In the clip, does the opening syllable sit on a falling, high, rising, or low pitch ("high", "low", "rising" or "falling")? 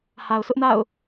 low